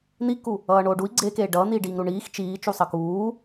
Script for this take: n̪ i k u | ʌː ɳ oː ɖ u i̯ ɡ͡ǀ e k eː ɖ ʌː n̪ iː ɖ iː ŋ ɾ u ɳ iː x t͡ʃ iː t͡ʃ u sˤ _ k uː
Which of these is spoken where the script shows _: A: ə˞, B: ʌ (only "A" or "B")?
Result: B